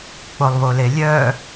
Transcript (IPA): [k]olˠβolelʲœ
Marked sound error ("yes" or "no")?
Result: yes